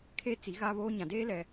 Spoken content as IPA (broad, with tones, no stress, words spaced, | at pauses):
kʰeː˦ t͡si˨˦ɣa˦βoː˦ɲã˨ deː˦ lɛ˦